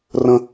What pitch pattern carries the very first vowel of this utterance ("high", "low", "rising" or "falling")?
high